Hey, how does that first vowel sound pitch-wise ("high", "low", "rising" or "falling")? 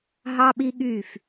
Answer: high